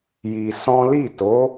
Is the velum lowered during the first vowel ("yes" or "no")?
no